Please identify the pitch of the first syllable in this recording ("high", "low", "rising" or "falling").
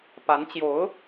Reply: rising